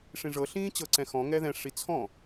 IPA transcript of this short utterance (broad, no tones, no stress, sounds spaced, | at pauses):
ʂ ĩ ʐ ɤ ɬ ĩː t͡ɕ ɤ ǀ ɛ̃ x ɔ̃ ŋ ɛ ð ɛ̃ ʂ i t͡sʰ ɔ̃